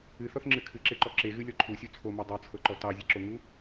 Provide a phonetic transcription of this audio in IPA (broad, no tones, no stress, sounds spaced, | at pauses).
ɨ θ ɔ θ ŋ͡ǁ ɨ kʰ ɨ ǁ e ǃ ɔ ǁ e ɣ ɨ lʲ ɔ ǃʰ u sʲ u t͡sʰ o m ɔ dˤ o t͡sʰ ɤ ǃ ɔ t ɑ zʲ ɨ ǁ o ŋ u